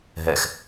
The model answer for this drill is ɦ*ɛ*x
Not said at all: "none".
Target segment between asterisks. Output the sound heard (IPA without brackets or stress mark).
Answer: ɛ